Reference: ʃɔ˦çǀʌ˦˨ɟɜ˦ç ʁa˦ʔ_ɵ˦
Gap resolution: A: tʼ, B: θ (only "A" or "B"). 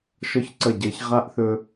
B